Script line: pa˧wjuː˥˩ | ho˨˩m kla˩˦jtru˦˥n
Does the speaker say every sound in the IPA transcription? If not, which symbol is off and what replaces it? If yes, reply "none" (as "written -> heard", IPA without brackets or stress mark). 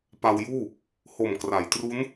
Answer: l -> r